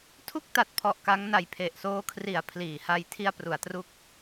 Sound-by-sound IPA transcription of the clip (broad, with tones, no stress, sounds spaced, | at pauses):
tʰ u˥˩ k̚ t a˨˩ t̚ pʰ ɔ˨˩ ʔ k a˦˥ ŋ n a˧ j pʰ e˨˩ ʔ s oː˦˥ kʰ r i˨˩ a̯ pʰ l iː˩˦ h a˧ j tʰ i˧ a̯ p r u˩˦ a̯ t r u˦˥ k̚